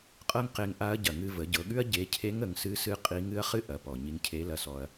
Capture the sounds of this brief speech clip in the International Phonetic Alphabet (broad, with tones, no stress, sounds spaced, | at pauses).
qʼ ɤ˥ ŋ q e˧ ŋ ʔ a˧˥ ɐ̯ ɟ ɐ˩ ŋ ɨ˧ v ə˩˧ ɟ ɤ˩˧ ɠ ʉ˥ ɐ̯ ɟ e˧˥ cʰ e˧˥ ŋ ə˩˧ ŋ s ɨ˧˥ s ɨ˧˥ qʼ i˧˥ ŋ ɨ˧˥ ɐ̯ χ ɨ˥ ʔ ɐ˩˧ p ɔ˩ ɲ i˧ ŋ cʰ e˧˥ l ɐ˧ s ɔ˧ ɐ̯